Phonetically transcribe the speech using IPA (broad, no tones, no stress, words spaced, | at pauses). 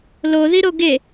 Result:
loðiɾo ɡe